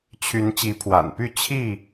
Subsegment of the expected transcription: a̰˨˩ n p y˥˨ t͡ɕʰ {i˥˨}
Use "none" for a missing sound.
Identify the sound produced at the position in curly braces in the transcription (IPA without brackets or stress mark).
i˥˨